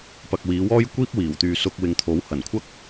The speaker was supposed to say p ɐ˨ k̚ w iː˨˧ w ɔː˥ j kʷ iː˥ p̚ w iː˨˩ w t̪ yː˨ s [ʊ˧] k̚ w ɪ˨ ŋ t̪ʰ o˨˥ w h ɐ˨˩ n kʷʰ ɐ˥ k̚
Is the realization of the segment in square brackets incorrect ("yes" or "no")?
no